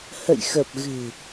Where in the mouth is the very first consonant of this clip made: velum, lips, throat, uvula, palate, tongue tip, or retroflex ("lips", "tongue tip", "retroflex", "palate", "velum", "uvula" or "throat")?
throat